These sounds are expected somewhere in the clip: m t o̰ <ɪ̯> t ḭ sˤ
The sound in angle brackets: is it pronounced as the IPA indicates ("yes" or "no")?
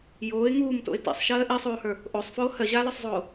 yes